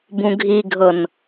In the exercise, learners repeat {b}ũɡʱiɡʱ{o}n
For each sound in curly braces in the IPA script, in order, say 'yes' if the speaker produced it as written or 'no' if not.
yes, no

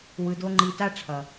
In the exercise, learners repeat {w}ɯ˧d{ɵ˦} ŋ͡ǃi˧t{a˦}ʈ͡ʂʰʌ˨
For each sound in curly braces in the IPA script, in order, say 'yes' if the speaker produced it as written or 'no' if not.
yes, no, yes

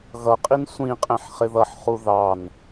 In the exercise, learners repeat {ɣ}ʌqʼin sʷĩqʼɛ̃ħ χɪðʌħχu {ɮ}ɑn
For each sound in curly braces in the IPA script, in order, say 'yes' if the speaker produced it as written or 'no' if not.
yes, no

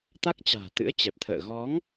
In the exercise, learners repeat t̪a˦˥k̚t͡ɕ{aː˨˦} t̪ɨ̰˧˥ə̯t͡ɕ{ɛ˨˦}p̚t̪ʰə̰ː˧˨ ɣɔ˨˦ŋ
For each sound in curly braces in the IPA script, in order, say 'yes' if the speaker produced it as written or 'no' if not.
no, no

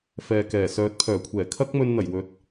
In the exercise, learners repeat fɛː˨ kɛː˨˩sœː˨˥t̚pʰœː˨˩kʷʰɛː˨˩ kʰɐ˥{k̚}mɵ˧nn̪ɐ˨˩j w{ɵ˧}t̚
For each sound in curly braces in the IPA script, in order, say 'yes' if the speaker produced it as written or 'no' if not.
yes, yes

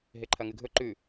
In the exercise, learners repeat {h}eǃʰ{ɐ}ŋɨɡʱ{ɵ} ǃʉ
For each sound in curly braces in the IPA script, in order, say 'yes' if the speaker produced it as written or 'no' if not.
no, yes, yes

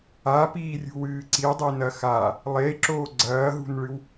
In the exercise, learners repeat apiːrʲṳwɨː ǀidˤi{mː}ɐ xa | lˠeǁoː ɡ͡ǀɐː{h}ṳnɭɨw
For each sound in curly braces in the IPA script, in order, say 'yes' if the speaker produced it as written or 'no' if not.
no, no

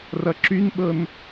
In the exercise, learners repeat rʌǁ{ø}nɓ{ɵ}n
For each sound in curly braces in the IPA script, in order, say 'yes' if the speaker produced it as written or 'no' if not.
no, no

